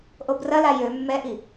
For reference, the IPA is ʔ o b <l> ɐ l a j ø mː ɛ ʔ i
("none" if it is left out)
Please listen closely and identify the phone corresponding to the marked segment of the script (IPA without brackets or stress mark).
r